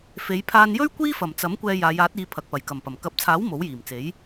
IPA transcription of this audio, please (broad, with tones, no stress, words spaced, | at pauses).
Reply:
fe˨˧jpʰaː˧njɵ˥ɥ kʷiː˥fɐ˨˩mt͡sɐ˨˥mkʷɛː˧ jaː˨˧jaː˨˥t̚iː˨˧ pʰɐ˨k̚pɐ˨˩jkɐ˨˩mpɐ˨˩m kɐ˨˥p̚t͡sʰaː˨˥w mo˨˥wjiː˨˩mt͡se˨˥j